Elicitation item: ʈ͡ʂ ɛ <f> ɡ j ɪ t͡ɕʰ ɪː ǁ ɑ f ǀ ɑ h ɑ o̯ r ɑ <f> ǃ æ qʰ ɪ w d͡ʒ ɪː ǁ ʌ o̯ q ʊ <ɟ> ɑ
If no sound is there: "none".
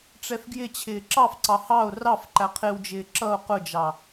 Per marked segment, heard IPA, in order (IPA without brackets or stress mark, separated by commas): f, f, d͡ʒ